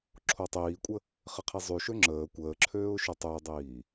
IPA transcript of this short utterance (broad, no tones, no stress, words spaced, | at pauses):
ǁʰotˤiːkʷʼə | χɪqʰizˤyʃø ŋ͡ǁəː kʷəːǁʰøːʊ̯ ʃøtˤødˤiː